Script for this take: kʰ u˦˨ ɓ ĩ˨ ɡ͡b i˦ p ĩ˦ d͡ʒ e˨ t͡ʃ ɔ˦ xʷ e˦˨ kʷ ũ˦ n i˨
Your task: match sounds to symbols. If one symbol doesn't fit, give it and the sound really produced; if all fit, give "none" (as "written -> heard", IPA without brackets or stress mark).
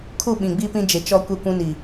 xʷ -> kʷ